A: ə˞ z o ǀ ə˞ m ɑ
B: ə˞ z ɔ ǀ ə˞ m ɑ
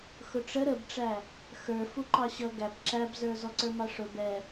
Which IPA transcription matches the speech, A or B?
B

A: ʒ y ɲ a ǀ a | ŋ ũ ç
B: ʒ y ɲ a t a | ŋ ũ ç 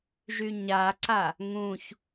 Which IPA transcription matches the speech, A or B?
A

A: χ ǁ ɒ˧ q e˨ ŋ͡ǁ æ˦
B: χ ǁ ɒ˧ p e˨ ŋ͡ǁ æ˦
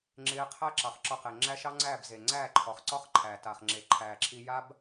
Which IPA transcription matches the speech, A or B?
A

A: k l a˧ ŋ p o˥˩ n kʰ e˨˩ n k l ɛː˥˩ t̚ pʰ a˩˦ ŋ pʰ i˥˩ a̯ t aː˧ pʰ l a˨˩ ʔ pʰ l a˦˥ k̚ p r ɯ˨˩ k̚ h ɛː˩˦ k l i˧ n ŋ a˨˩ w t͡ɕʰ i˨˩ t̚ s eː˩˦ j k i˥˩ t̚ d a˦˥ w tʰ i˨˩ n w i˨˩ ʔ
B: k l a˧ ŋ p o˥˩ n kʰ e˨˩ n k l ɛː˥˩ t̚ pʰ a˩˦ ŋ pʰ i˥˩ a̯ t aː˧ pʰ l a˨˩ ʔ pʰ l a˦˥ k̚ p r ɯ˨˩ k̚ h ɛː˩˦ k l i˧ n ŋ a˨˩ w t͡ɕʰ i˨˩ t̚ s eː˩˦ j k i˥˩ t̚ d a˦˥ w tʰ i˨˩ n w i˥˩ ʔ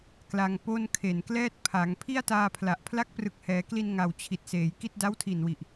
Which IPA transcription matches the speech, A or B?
A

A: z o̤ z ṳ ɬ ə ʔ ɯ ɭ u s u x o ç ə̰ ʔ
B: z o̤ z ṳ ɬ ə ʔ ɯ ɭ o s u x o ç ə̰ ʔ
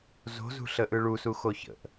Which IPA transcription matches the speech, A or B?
A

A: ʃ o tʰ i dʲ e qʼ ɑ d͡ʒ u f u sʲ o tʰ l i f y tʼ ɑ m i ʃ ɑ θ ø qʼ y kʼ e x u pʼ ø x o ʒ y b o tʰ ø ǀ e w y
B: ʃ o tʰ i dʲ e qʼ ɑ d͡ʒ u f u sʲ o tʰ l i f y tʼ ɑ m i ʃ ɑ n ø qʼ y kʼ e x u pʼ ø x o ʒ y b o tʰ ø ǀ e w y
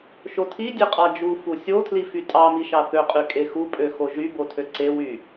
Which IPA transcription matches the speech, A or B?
A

